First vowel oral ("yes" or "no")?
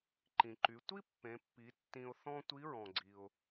no